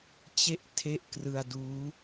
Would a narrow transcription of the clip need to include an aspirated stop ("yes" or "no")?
yes